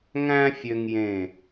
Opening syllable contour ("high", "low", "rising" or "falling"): high